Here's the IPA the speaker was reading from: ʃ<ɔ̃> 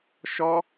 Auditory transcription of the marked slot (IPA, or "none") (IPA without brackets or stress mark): ɔ